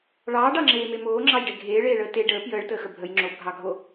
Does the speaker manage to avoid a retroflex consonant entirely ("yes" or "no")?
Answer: no